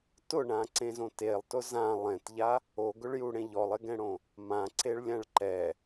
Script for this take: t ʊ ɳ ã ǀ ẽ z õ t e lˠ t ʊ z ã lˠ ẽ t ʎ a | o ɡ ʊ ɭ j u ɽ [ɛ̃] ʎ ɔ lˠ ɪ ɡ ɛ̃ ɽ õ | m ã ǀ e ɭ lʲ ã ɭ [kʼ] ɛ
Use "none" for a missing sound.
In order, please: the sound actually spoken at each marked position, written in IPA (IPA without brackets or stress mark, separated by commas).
ẽ, ǃ